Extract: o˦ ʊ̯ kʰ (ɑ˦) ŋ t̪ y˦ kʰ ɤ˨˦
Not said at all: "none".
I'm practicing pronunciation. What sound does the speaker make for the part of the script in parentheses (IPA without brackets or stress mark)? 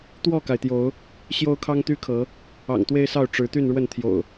ɑ˦